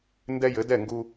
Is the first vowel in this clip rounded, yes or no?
no